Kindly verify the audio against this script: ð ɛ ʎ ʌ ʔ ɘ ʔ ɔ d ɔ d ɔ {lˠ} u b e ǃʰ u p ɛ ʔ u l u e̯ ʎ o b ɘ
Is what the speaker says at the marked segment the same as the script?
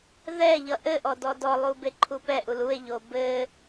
yes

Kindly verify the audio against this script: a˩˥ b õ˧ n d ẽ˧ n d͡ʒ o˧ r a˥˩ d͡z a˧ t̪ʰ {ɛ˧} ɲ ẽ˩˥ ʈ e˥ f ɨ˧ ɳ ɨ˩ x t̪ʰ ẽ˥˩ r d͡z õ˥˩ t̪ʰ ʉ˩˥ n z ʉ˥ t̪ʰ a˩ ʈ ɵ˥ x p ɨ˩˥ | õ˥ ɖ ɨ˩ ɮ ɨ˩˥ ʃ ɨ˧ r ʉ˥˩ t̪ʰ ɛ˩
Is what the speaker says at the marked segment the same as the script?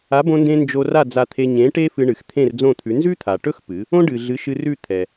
no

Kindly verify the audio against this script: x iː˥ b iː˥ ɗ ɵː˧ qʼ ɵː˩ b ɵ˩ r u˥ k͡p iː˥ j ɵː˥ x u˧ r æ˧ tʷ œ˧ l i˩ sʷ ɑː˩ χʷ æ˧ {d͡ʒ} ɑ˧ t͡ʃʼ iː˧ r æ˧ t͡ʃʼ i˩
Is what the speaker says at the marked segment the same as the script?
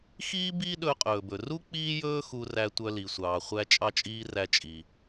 no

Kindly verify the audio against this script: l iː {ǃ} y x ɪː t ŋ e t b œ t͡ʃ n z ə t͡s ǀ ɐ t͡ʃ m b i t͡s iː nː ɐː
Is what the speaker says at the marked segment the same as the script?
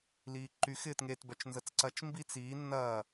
yes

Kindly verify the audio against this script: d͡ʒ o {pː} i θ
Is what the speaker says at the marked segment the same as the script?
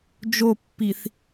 yes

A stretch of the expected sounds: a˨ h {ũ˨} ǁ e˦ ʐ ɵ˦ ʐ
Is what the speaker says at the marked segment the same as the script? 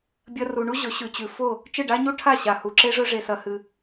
no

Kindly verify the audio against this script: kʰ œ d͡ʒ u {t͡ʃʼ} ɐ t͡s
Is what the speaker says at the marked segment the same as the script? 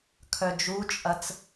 yes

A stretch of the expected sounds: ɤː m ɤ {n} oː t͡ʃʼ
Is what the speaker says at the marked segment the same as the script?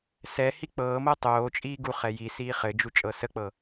no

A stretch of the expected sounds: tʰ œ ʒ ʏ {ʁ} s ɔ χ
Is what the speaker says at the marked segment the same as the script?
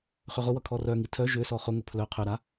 no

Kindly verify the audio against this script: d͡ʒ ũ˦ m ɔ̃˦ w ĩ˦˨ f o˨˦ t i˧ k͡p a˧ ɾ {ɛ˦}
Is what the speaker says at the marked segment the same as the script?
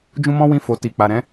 no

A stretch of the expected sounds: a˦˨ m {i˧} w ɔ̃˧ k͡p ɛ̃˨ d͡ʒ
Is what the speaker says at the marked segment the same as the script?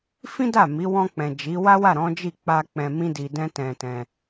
no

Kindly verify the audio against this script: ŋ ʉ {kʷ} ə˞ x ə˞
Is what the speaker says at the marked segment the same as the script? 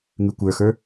yes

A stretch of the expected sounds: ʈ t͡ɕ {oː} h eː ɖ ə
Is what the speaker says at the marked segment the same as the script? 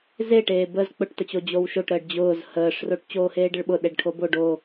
yes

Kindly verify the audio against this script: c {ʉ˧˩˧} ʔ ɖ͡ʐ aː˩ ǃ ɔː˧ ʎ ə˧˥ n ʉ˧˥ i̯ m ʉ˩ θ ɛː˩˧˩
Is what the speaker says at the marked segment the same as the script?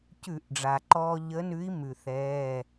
yes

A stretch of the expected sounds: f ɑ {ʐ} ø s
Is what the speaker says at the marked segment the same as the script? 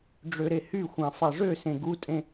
yes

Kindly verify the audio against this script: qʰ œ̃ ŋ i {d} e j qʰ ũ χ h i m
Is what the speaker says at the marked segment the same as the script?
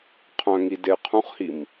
yes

